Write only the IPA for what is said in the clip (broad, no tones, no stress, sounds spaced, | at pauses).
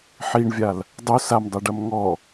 ħ i ɳ vʲ a l | dˤ u s a m dˤ i ɖ ɐ m ŋ ɔ